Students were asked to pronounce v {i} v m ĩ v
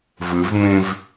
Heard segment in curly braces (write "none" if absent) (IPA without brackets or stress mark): ɨ